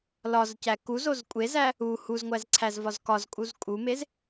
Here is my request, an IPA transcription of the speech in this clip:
l ɒ z c æ k u z o z kʷʼ e z æ | u h u z ŋʷ æ z ǀʰ æ z v ɒ z k ɒ z kʼ u z kʼ u m e z

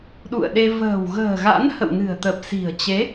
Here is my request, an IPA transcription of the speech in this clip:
ɗ ṵ˧˨ ə̯ ɗ e˧ v ə̤ː˨˩ w ɣ ə̤ː˨˩ ɣ a̰˧˥ n h ə̰˧˨ w n ɨ̤˨˩ ə̯ t̪ ə˨˩ p̚ s i̤˨˩ ə̯ t͡ɕ e˨˦

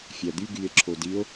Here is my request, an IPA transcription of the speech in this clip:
fʲ æ d̪ y ɡ y e̯ ǁʰ o d i o̯

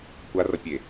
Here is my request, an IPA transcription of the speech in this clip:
kʷ a r ʌ pʲ e

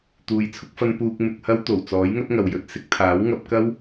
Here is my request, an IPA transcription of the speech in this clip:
t̪ uː˨ j t͡sʰ ʊ˧ k̚ f ɐ˧ n p uː˧ k̚ m ɪ˨ k̚ h ɐ˧ w t̪ o˨˩ w t͡s ɔː˨˥ j ŋ ɐ˥ t̚ ŋ ɐ˨ w j ɵ˨˥ t̚ s ɪ˧ k̚ t̪ʰ aː˨˥ w ŋ ɐ˨˥ p̚ k ɐ˥ w

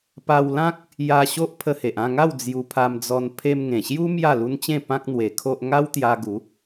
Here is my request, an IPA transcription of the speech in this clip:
p a˧ w l ã˦ k̚ | j a˧ ɕ o˦ ʔ pʰ ə˧ h e˨ ʔ ã˥˧ ŋ a˥˧ w d͡z j u˧ pʰ a˧ m d͡z ɔ˧ n pʰ e˧ m ŋ ẽ˨˩ ɕ j u˦ m j a˥˧ l u˦ n t͡ɕ ẽ˥˧ p ã˦ k̚ n̪ w e˧ kʰ o˦ ʔ ŋ a˦ w t̪ j a˧ ɡ u˨˦

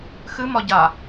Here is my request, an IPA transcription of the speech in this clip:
x ɨ m ɒ ɟ a

